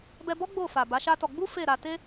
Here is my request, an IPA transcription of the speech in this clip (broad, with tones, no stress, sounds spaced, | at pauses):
b ɛ˧ b ɔ˦ ɡ͡b o˦˨ f a˨ b a˨˦ ʃ a˦ t ɔ˧ ɡ͡b u˦ f e˦˨ ɾ a˧ t e˦